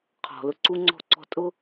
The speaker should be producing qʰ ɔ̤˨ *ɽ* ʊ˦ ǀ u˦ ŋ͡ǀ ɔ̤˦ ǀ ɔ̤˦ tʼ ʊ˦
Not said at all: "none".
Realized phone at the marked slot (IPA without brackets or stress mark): l